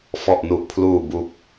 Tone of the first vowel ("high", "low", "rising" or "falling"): low